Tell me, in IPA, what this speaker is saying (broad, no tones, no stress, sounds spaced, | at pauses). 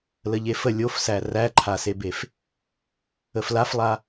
l ə ʎ e f ə lʲ o f s æ r æ ǃʰ a s e b e f | ə f l a f lˠ a